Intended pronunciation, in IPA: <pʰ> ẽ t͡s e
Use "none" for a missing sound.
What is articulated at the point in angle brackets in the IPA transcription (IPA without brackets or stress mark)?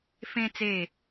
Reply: f